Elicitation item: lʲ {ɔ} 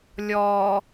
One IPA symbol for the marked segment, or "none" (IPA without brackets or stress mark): ɔ